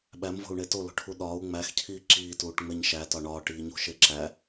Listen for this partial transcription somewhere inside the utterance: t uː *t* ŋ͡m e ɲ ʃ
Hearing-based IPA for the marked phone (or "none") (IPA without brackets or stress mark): ʈ